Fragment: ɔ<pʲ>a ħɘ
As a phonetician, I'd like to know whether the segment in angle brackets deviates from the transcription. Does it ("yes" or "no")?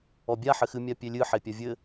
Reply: yes